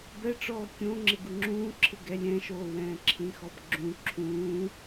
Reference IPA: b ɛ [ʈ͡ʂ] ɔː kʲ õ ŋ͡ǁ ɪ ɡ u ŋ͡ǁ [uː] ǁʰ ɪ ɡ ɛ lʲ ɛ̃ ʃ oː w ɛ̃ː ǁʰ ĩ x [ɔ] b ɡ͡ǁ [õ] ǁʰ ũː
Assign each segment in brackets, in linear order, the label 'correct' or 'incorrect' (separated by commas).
correct, incorrect, correct, incorrect